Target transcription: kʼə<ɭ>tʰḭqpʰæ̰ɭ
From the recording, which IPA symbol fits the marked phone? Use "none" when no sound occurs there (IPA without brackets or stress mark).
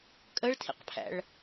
ɭ